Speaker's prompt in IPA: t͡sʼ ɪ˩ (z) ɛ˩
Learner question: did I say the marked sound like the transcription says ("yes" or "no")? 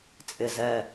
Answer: yes